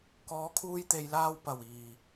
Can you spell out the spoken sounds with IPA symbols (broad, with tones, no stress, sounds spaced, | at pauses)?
k ɔː˨˧ kʰ uː˧ j t̪ e˨ j l aː˧ w p ɐ˨˩ w iː˨˩